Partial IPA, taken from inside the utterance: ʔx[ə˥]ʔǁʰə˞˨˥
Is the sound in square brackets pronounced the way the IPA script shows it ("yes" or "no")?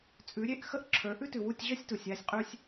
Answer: yes